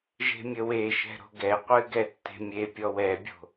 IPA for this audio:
ʒe̤mʲəweʃɛ̤ ɾo̤ɡɛqʷɨ ɡɛtːe̤mʲepʲɔw ɛbʲo̤

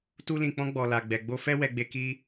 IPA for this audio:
tu˧lĩ˨k͡pɔ̃˧ ɡ͡bɔ˨la˨ ɡ͡bɛ˨ɡ͡bo˧fɛ˦ wɛ˧ɡ͡be˧ ki˧

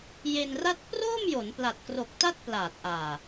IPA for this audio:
je˧nra˥˩t̚ proː˥˩mjo˩˦n pla˨˩t̚kro˨˩k̚ ta˥˩t̚plaː˨˩t̚ʔaː˨˩

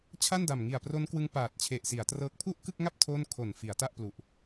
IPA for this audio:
t͡ɕʰa˥˩nda˨˩mŋi˨˩a̯ pro˦˥n kwɯ˦˥ŋ paː˨˩t̚t͡ɕʰe˨˩ʔsi˩˦a̯trɤː˦˥k̚ pʰu˥˩ʔkɯ˥˩k̚ŋa˥˩p̚ tʰo˥˩n kʰo˨˩nfi˩˦a̯ ta˥˩ʔ plu˨˩ʔ

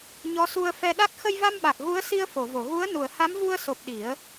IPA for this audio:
ɲɔ˧˥su˧ə̯ fɛ˧ɗa˦˥k̚ xə˧jva˧mɓa˨˩k̚ ɣu˧˥ə̯si˧ə̯ fo˨˩˨vo˨˩˨ɣu˧˥ə̯ nu˨˩˨ə̯ha˧˥mvu˧ə̯so˨˩p̚ ɗi˨˩˦ə̯

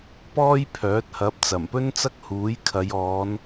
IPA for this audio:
pɔː˥jpʰœː˨˥t̚hɐ˨˥p̚ t͡sɐ˨˩mpɵ˥nt͡sɐ˥k̚ huː˨˥jkʰɐ˨˧j ɔː˨˧n

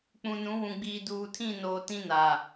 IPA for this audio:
k͡pũ˨nũ˨˦wũ˨ɡ͡biː˨ duː˨tʰĩ˦˨noː˨ tĩ˦naː˨

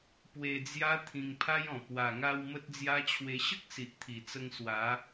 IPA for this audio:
pwe˧d͡zja˦ t̪ʰĩ˧ŋpʰa˦jɔ̃˨˩ pwa˨˩ ŋa˧w mə˦t̚d͡zja˦t͡ɕʰwe˧ ɕə˦k̚ si˨ʔt̪ʰi˨˩t͡sə˧ŋ swa˨˦

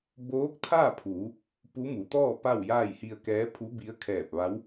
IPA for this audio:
boː˧˥k̚t̪ʰaː˥˨pʰuː˩˧ | pu˧˥mu˩˧ t̪ɔː˥˨ pa˥˨wjaː˥˨jhi˧ə̯kɛː˧˥ pʰu˧˥bi˧˥ə̯kʰɛː˧˩p̚ʋa˧˥w

